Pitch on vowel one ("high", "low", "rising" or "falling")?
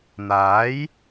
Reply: rising